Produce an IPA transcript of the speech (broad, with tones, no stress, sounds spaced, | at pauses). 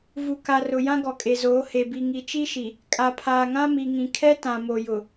v u˨ k a˨ r ʊ˨ j ã˦ ɡ ɔ˨ kʼ e˨ z oː˨˦ h e˨ b i˨ ŋ i˨ t͡ʃ i˦ ʃ i˨ | kʼ a˨ pʰ aː˨ ŋ ã˦ m i˨ ŋ ĩ˨ kʰ ɛ˦ t ã˨ m o˨ j ʊ˨